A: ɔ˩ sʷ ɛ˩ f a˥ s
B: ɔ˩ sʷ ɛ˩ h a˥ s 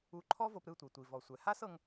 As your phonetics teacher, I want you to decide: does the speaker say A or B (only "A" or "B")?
B